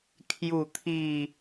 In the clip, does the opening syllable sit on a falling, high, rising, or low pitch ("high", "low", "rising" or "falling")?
falling